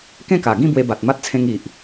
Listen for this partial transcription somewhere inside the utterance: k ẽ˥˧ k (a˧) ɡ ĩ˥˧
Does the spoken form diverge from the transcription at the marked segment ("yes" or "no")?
yes